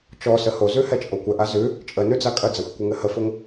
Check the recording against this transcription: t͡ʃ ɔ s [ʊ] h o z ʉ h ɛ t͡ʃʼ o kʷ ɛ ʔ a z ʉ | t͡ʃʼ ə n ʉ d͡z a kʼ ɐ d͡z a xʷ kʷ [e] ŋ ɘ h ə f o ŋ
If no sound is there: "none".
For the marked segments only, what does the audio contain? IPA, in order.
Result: ə, ɘ

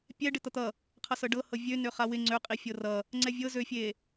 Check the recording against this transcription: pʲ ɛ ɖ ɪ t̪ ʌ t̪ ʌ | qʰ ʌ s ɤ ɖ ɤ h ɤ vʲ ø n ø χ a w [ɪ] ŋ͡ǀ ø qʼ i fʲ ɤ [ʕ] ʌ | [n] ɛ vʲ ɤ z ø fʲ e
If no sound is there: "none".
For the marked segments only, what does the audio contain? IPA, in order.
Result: ɪ, r, ŋ͡ǀ

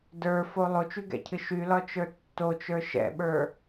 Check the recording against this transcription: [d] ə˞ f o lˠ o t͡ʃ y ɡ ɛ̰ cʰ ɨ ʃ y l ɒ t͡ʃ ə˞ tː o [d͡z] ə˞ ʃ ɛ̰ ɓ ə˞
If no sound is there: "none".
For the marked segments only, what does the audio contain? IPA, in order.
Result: d, t͡ʃ

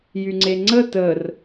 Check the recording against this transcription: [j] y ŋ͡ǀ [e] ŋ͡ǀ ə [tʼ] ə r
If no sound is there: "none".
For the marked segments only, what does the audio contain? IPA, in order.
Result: j, e, t

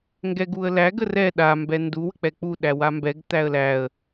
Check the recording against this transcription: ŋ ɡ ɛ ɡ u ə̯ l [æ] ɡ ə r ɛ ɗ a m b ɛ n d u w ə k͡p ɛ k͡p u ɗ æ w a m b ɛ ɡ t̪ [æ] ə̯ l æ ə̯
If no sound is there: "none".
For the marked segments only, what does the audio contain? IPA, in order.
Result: æ, æ

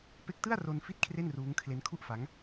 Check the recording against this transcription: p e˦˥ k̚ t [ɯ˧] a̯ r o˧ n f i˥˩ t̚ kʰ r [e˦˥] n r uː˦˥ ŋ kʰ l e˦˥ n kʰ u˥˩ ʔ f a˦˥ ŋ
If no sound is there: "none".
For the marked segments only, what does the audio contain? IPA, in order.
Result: ɯ˥˩, e˥˩

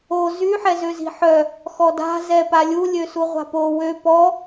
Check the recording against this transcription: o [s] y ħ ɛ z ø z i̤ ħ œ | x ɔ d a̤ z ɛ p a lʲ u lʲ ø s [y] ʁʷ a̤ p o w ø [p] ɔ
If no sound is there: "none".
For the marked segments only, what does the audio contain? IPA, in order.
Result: z, u, p

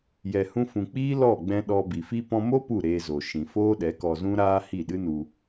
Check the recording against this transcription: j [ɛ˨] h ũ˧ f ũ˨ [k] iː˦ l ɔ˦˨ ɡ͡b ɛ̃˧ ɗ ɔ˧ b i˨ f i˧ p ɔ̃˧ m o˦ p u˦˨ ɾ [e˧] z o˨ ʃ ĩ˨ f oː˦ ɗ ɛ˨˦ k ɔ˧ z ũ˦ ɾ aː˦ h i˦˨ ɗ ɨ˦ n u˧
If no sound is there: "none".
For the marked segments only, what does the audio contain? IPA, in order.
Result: ɛ˨, k͡p, eː˧

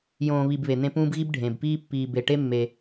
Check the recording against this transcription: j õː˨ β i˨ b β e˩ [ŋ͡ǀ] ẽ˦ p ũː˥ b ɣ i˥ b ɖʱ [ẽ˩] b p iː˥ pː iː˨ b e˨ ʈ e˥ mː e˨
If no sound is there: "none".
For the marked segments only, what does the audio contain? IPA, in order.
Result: n̪, ẽ˩

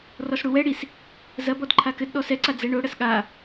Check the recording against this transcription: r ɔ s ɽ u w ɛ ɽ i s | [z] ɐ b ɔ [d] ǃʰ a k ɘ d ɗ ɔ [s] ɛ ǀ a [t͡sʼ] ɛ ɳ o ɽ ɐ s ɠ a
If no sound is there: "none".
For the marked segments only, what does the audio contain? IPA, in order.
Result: z, d, s, d͡z

